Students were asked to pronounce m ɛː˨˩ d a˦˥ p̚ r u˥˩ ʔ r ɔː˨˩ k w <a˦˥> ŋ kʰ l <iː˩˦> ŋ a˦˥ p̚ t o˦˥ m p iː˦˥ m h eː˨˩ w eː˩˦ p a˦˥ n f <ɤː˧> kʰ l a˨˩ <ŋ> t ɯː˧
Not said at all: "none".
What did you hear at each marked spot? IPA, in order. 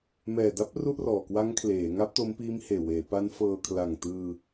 a˦˥, eː˩˦, ɤː˧, ŋ

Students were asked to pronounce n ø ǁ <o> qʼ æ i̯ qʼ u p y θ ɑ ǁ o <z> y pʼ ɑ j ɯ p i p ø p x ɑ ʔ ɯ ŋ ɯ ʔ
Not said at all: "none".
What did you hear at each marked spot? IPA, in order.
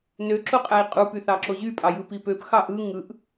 o, ʑ

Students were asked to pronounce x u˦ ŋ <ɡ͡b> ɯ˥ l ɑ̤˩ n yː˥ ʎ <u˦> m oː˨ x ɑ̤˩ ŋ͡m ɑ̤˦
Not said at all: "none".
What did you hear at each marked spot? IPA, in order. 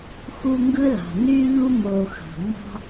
ɡ, u˥

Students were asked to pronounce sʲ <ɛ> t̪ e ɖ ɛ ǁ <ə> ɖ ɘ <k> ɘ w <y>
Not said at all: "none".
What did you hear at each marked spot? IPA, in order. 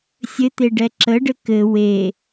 ɘ, ə, k, e

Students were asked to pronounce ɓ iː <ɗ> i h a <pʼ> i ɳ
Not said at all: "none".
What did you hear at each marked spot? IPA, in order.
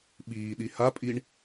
ɗ, pʼ

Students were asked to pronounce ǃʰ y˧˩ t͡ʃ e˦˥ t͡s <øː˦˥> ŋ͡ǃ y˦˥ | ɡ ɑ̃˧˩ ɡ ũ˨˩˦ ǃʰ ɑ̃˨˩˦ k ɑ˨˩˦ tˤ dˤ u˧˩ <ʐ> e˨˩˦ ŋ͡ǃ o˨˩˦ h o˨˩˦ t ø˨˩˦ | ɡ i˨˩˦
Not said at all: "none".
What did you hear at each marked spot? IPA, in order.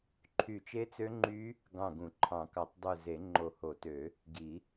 ø˦˥, z

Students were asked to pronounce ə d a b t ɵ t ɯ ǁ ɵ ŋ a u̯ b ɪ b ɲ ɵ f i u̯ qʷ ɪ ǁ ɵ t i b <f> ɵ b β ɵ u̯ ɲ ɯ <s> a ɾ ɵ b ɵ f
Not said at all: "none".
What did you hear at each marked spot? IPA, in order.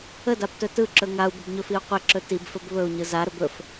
f, z

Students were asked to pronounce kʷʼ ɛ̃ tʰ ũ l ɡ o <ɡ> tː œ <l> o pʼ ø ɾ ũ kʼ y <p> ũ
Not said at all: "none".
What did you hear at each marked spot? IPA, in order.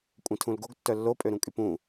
ɡ, lː, p

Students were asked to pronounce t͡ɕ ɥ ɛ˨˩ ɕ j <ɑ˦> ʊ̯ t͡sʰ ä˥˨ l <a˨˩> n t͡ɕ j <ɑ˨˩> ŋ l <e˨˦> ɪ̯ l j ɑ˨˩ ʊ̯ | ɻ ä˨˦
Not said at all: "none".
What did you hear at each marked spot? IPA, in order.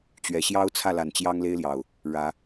ɑ˦, a˨˩, ɑ˦, e˦

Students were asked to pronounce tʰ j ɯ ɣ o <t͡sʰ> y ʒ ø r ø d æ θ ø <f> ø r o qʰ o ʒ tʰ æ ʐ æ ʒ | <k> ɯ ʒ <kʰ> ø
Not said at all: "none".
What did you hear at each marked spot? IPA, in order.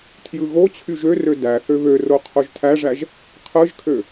t͡ɕʰ, β, qʰ, kʰ

